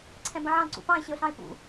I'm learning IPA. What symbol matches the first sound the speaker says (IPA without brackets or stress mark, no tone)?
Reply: ǀʰ